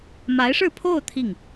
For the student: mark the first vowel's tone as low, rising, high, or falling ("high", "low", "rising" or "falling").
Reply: rising